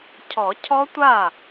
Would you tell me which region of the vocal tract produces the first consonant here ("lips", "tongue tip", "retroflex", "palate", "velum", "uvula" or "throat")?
palate